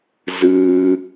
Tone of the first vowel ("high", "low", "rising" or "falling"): low